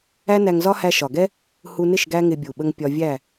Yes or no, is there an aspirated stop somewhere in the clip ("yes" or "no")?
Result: no